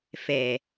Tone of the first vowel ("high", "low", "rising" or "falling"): low